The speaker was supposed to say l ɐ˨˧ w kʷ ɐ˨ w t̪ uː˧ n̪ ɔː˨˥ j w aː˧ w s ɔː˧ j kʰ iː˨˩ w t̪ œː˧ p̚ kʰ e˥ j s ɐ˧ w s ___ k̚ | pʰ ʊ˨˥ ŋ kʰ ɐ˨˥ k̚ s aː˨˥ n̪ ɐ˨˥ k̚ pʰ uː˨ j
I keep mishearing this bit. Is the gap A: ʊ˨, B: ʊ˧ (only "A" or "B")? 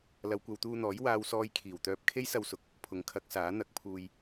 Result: A